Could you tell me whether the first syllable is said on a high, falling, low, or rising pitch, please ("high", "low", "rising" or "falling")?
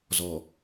low